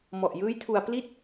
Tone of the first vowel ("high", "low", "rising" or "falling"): low